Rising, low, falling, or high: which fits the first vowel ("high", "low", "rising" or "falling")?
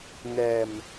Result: low